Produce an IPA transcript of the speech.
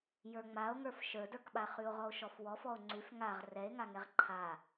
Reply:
j ə˞ ŋ͡m a o̯ ŋ ə˞ f ʃ ə˞ d ə˞ k ɓ a χ ʉ o̯ ʁ ɔ o̯ ʃ ɔ f w ɔ f ɔ o̯ ŋ͡ǀ ʉ f ŋ a ʁ r ɛ e̯ ŋ a ŋ ɛ ʁ ǃʰ a

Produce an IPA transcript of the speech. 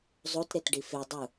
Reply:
zˤ o t ɾ e t ɖ i f e dˤ u

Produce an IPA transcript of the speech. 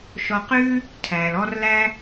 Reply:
ʃ ɔ˧ q ʉː˦ | tʰ æː˨ l ɔ˧ r l æ˧

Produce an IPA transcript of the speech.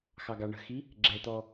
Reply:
x ɑ ɡ ɑ ɳ ə̤ x i | ɡ͡ǁ ɛ t̪ ɔ

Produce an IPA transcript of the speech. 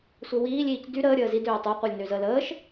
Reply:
sʷ e w iː lʲ iː c d y ɾ əː ɾʲ əː z i d øː tˤ y qʷ e lʲ n ø z ə l əː ʃ

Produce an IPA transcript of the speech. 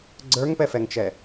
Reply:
ɡ͡ǀ ə˞ ŋ p ɛ f ɛ ŋ t͡ʃ ɛ

